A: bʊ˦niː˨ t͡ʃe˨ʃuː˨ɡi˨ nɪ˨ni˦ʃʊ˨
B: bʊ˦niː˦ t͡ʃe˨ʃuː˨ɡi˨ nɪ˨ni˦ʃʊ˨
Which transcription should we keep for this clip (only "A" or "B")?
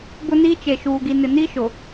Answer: B